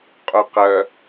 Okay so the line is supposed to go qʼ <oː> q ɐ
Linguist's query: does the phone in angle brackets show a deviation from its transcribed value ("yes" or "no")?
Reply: yes